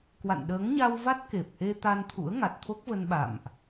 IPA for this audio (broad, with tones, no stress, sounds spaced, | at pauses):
k w a̰˧˨ n ɗ əː˨˦ ŋ ɲ a˧ w v a˦˥ t̚ k e˨˩ p̚ ʔ e˧ t̪ a˧ n t̪ʰ ṵ˧˥ ə̯ ŋ a˨˩ t̚ t̪ʰ o˦˥ k̚ v ə˧ n ɓ a̰˧˨ m ʔ